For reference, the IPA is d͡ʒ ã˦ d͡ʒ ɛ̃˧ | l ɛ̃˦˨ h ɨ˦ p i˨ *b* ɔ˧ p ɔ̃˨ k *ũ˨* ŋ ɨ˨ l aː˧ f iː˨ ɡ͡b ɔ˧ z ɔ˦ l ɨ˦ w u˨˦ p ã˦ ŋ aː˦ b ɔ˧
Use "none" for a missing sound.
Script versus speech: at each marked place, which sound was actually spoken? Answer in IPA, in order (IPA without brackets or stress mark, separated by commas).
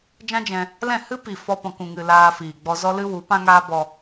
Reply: f, ũ˨